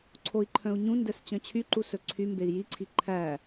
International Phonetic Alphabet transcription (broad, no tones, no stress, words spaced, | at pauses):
ǀʰoi̯ǃʰœ̃u̯ɲũndɛs t͡ɕœ̃t͡ɕʰyǃu sɵǀʰymbei̯ jiǀʰi ǃʰæ